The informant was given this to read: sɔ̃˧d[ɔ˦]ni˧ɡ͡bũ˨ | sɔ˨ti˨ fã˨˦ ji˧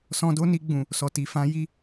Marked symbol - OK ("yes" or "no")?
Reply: no